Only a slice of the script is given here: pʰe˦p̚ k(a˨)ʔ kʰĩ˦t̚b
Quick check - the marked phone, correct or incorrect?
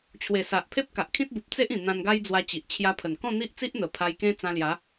correct